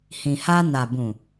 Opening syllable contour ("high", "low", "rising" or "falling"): low